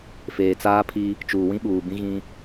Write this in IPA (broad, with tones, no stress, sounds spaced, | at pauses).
f eː˨ t͡s aː˦ pʰ i˦ | t͡ʃ uː˨ w ĩ˦ ɓ uː˨ b ĩ˦ ɣ ĩ˦